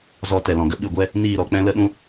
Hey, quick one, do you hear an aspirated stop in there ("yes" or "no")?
no